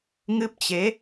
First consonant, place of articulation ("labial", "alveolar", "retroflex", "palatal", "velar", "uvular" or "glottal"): velar